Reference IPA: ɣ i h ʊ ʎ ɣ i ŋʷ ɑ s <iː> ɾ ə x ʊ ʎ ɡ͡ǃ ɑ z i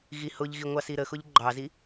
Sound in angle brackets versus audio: incorrect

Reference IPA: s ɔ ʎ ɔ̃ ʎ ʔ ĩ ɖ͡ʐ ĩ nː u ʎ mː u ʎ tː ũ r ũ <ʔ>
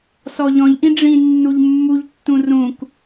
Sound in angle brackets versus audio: incorrect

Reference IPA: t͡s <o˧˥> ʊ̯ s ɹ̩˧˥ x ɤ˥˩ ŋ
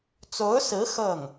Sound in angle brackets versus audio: correct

